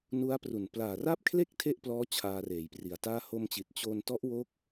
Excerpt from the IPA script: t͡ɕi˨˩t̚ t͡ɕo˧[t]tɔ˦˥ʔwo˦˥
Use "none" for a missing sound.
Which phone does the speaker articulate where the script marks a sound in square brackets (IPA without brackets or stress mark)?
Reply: n